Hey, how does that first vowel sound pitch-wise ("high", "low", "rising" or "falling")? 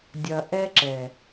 low